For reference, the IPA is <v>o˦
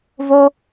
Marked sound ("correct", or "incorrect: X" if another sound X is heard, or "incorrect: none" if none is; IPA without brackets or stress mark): correct